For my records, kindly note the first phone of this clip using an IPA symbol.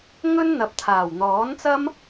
ŋ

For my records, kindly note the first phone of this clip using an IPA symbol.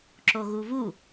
ǁ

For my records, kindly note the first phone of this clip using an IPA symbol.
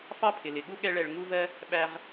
f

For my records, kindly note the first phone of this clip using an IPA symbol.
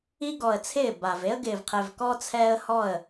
i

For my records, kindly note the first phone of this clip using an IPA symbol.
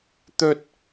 t̪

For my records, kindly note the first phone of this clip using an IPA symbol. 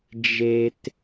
d͡ʒ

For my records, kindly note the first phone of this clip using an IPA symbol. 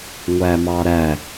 ŋʷ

